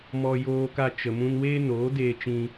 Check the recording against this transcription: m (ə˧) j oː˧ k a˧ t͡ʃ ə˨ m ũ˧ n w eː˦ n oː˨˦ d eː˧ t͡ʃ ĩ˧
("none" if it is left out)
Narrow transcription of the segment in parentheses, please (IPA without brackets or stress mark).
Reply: ɔ˧